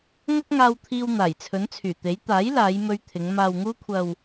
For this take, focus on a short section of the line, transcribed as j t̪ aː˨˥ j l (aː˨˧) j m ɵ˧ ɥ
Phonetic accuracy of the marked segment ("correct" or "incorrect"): correct